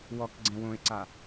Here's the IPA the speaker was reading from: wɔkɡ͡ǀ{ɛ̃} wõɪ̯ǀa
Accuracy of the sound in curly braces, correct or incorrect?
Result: correct